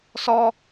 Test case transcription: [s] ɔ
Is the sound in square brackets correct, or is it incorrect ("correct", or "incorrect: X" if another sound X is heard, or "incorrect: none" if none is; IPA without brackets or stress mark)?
correct